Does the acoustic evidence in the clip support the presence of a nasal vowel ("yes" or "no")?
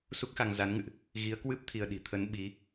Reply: no